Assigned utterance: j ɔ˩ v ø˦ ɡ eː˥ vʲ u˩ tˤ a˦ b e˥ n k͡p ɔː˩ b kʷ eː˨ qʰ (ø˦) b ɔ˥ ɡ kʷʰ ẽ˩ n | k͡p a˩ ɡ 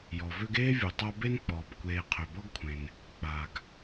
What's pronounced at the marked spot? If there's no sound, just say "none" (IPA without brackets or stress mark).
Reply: ø˩